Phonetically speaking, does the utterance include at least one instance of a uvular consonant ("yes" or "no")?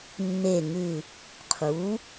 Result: yes